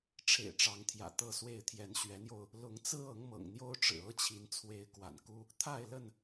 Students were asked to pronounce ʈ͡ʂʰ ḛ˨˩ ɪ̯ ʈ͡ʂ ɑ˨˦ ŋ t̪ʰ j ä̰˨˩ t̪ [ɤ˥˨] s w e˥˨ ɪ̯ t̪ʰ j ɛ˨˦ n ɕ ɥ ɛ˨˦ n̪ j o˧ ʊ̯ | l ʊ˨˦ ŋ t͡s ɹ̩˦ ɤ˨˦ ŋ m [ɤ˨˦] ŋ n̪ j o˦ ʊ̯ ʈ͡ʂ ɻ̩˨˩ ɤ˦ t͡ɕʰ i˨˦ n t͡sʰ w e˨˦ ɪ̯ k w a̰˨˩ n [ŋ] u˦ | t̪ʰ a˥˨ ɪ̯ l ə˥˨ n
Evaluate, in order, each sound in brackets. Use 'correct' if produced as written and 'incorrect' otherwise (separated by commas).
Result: correct, incorrect, incorrect